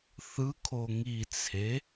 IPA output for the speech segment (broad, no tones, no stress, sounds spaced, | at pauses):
θ ɯ kʰ o ŋ i t͡sʰ e